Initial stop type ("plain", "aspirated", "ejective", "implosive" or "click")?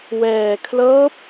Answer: aspirated